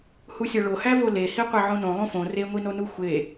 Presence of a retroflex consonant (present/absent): present